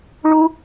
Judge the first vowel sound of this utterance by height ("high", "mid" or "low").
high